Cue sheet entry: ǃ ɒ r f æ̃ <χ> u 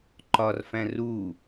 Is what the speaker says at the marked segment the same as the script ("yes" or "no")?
no